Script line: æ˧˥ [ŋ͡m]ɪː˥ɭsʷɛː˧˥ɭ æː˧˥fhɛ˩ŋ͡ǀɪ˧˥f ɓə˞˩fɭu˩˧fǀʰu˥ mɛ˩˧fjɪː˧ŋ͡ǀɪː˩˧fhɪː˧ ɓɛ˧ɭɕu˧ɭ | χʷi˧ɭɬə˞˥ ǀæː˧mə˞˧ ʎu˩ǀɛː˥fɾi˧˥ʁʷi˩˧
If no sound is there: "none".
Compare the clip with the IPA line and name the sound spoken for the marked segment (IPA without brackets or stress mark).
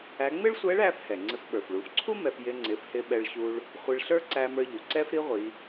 ŋ͡m